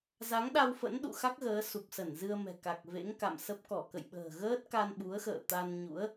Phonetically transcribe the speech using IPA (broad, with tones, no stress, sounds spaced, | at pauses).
z a˨˦ ŋ ɗ a˧ w f ə̰˧˥ n ɗ ṵ˧˨ x a˦˥ k̚ ɣ əː˨˦ s u˨˩ p̚ s ə˧˩ n z ɨ˧ ə̯ m ɛ̤˨˩ k a˨˩ k̚ v ḛ˧˥ ŋ k a̰˧˨ m s ə˦˥ p̚ k ɔ˧˩ k ə̰˧˨ j ɓ ə̤ː˨˩ ɣ əː˦˥ t̚ k a˧ n ɓ u˨˦ ə̯ x ə̰ː˧˨ t̪ a˧ n ɲ ṵ˧˥ ə̯